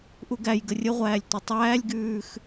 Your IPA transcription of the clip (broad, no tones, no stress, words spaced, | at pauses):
ʔuɡæjɡə rʲəʁʷæːlʲ tʷətˤæːlʲɡʉːx